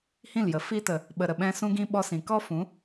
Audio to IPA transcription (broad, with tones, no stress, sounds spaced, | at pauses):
h ĩ˦˨ l j ə˨ f i˧ t ə˨ | ɓ ə˨ ɾ ə˨ ɓ ɛ̃˧ s ũ˦ ɡ ĩ˦ ɓ ɔ˧ s ĩ˨ k ɔ˦ f ũ˨˦